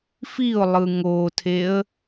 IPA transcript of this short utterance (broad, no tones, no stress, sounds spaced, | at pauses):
f i ʊ̯ lˠ ɯ ŋ o tʰ e ə̯